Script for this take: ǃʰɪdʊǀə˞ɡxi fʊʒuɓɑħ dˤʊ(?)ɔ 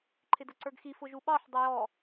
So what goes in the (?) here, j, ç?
j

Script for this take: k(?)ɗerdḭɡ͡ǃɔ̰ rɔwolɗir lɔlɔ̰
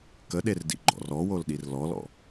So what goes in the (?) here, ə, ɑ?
ə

